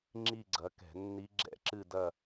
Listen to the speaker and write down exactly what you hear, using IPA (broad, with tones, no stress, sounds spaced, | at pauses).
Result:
ŋ͡ǁ i˥˧ ɡ͡ǀ ɐ˨˥ k ɛ̤˧˩˧ nː i˦˥ ɡ͡ǁ ɛ̰˥˧ ǁ ɨ˥˧ d ɐ˥˧